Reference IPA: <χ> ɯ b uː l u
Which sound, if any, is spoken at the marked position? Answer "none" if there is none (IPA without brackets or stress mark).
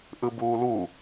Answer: ʔ